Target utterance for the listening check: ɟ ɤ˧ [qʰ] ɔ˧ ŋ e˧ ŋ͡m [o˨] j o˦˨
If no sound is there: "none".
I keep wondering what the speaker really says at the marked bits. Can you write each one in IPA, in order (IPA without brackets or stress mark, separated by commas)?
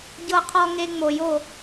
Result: qʰ, o˨